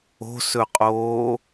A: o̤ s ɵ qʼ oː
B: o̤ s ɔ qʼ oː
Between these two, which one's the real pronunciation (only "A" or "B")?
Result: A